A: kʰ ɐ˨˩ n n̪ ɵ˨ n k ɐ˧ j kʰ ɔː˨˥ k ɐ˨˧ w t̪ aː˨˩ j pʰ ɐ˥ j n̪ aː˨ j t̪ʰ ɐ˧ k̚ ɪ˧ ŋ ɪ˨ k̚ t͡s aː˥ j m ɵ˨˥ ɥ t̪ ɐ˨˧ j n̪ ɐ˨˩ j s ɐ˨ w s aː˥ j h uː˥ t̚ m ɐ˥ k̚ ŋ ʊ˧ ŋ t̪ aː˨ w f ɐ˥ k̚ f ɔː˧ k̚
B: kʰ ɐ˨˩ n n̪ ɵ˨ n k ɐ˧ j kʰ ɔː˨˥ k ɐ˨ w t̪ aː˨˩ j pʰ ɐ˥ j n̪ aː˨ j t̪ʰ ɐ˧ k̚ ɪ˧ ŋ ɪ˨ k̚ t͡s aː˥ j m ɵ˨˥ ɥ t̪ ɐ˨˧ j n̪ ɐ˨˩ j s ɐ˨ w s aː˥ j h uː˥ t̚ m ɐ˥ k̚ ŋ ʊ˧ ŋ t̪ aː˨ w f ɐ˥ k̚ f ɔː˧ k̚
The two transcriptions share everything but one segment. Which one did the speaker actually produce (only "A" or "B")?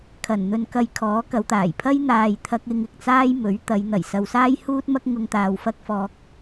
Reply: A